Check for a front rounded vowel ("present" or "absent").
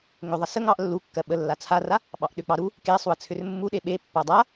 present